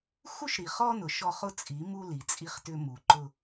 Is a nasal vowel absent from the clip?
yes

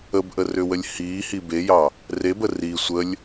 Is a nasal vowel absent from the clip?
yes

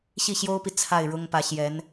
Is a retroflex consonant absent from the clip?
no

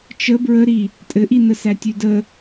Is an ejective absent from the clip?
no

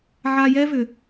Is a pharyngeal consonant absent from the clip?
no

